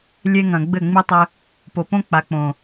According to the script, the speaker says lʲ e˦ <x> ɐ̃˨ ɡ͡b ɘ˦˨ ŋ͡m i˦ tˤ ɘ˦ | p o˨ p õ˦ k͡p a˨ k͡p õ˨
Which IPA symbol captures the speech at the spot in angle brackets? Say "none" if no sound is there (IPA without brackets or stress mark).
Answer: ŋ